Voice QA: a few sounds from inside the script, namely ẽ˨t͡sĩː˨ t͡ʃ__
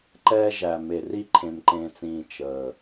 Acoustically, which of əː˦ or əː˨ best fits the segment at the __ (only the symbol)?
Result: əː˨